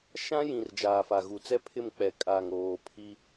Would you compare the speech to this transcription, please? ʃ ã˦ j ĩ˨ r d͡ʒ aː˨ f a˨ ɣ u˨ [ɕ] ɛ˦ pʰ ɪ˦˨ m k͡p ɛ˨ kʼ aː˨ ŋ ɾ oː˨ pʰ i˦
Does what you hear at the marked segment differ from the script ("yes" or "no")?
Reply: yes